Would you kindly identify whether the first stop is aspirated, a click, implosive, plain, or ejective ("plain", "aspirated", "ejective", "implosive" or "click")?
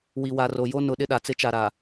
implosive